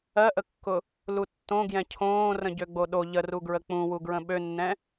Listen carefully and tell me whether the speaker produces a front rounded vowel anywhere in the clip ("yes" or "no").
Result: yes